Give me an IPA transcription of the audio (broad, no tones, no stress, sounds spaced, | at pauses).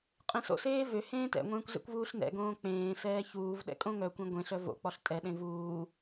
qʼ ẽ s o̰ s eː v ø h ẽː t ɛ̰ ŋʷ ẽː kʷ z ɛ̰ kʷ v uː ɬ n ɛ̰ ɡ õː k͡p ẽː s ɛː ç uː v ɗ ɛ̰ kʼ õ ŋ œ kʷ ĩ ɡʷ ẽ ɬ œ v o̰ k͡p ɔ ɬ tʼ ɛ ɗ ẽ v uː